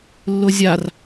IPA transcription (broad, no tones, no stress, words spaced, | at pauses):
lːʊzʲar